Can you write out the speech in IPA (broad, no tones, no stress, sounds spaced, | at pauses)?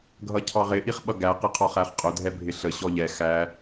ɡʱ ʌ cʰ ɑ ʁ ɪ ʔ i χ ɓ ʌ ɡ æ q ɪ qʰ ɒ χ æ χ qʼ ʊ dʱ ɛ bʱ ɪ ɬ ə ɕ ɔ ʎ ɛ x æ